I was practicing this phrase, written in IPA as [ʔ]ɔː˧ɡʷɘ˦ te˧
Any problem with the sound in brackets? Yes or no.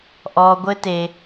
no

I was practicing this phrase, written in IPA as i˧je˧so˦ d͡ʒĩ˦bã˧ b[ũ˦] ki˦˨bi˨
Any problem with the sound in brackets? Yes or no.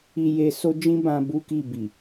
yes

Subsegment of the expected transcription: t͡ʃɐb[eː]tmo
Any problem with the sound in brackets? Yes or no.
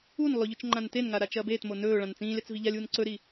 no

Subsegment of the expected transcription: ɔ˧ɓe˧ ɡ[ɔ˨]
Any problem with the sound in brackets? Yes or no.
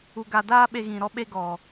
no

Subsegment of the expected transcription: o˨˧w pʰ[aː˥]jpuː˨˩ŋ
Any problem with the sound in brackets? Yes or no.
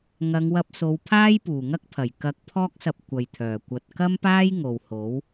no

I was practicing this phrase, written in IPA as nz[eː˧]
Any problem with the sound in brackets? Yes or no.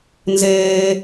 no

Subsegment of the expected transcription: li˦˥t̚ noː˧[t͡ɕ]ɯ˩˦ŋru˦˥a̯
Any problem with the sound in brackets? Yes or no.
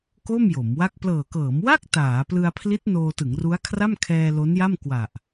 yes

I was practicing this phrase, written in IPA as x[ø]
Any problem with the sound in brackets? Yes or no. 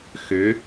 no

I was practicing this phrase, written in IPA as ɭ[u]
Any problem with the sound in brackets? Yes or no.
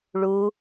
no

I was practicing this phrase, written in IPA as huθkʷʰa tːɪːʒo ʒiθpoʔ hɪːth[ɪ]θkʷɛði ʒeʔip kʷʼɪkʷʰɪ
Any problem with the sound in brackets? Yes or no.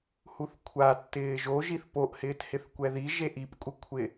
no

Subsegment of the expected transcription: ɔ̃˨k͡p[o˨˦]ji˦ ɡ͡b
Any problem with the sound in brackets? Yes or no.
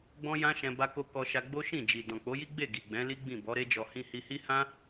no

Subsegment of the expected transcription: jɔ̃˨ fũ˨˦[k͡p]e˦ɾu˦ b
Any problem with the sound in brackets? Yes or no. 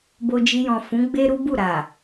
yes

